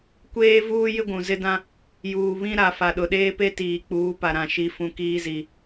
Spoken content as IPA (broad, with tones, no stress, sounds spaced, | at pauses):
kʷ eː˦ v uː˦ j ɪ˦ ɡʷ ũ˨ z ɪ˦ d ã˦ | j uː˨ β ĩ˦ ɾ a˨ f a˨ ɗ ʊ˨ ɗ eː˦ p e˦ t iː˨ k͡p uː˨˦ p a˨ ɾ ã˨ ʃ i˨ f ũ˨ k iː˦ z i˨